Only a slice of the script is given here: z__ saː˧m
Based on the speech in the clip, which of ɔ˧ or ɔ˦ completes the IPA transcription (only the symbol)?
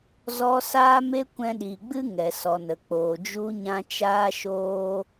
ɔ˧